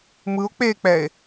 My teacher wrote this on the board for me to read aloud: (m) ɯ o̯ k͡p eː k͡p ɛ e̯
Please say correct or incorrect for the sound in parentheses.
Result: correct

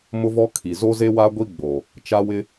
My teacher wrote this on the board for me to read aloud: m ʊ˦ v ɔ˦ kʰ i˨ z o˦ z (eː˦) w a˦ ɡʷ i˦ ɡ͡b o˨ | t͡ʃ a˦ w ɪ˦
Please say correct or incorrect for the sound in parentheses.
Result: incorrect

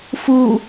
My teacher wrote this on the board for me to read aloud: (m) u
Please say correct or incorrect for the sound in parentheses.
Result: incorrect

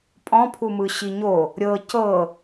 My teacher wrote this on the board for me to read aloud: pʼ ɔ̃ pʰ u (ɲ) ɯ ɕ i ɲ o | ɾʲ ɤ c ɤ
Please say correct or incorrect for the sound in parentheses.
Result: incorrect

